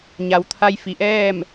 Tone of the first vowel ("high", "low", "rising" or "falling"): low